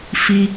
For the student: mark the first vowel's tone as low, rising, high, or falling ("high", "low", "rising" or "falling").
high